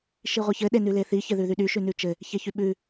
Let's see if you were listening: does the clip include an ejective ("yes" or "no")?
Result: no